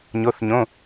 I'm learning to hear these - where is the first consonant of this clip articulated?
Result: palate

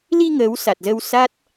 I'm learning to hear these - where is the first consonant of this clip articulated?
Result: tongue tip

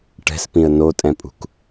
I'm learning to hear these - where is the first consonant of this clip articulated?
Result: retroflex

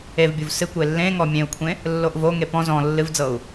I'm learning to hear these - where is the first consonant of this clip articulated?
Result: lips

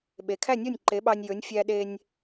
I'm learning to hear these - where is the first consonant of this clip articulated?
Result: lips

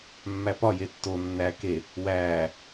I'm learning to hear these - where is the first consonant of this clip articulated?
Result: lips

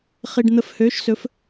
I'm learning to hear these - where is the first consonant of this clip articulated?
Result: uvula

